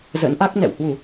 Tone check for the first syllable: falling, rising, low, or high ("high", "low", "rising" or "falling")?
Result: rising